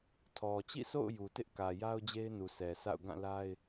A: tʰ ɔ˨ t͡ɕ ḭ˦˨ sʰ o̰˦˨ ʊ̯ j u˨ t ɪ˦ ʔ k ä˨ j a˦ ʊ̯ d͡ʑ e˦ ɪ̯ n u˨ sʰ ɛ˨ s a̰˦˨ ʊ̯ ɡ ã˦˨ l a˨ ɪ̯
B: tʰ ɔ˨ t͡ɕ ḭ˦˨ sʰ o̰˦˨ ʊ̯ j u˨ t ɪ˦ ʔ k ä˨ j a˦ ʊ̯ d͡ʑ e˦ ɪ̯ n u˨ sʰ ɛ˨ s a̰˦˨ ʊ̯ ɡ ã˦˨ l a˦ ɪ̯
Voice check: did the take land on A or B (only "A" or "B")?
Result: B